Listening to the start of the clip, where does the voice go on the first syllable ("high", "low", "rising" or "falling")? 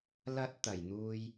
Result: high